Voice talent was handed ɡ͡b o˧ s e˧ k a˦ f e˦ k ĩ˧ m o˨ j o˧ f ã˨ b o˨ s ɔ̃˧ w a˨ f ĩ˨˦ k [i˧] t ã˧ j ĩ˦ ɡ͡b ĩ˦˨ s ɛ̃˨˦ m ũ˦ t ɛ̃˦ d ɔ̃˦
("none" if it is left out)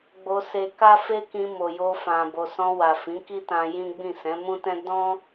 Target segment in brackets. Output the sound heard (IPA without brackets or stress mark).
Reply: i˦